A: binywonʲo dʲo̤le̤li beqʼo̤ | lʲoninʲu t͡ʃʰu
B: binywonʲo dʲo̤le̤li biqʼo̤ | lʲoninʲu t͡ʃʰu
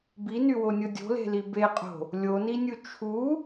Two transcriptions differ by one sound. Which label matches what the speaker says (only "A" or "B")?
A